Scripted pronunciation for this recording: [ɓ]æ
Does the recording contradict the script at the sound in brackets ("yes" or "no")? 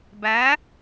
yes